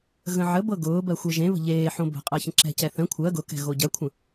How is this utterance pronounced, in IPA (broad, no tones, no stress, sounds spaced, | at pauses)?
ɣ ə̃ ʕ ə b ɤ ɡ ʊː b ɜ xʷ e ʒ ẽ β ə̤ ʎ eː ħ õ b ə̤ qʼ ɤ ç ə̃ ǁ ɛ̤ c ɛ θ ə̃ kʷʰ ɜ ɡ ʊ k ɛ̤ ɣ o ɟ ɜ kʷʰ ə̃